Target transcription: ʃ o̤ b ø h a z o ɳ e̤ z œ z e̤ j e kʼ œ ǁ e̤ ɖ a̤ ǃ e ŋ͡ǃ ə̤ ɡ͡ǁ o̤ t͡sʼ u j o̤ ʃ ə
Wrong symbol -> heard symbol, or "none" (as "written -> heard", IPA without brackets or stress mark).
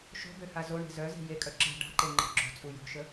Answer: none